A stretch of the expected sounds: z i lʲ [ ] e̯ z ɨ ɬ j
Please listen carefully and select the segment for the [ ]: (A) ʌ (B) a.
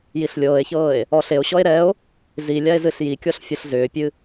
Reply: B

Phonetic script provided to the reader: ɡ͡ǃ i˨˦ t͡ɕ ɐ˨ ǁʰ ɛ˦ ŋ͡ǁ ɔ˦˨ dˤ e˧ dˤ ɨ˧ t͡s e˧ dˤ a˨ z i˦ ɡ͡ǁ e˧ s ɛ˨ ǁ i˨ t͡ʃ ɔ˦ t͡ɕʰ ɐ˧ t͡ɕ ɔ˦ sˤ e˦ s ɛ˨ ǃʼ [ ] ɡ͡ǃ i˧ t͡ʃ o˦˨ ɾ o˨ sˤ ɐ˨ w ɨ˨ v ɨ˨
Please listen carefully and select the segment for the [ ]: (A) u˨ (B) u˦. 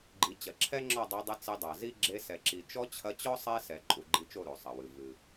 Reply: A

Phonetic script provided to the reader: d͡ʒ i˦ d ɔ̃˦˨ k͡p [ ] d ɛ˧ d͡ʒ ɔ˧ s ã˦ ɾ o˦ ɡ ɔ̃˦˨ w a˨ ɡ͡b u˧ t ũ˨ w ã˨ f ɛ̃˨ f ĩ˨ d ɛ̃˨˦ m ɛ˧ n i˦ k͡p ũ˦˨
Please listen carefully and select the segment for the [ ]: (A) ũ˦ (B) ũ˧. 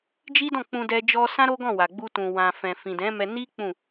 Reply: B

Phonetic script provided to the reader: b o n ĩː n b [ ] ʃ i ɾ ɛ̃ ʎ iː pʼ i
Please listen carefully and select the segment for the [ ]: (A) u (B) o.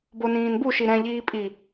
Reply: A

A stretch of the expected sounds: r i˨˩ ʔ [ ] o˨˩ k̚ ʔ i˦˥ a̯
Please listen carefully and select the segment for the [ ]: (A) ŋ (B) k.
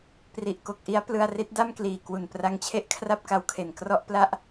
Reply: B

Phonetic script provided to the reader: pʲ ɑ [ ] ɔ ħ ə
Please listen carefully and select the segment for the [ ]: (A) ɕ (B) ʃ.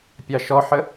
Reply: B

